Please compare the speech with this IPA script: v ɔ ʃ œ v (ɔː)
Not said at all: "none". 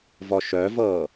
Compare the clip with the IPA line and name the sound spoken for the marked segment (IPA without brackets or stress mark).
ɤː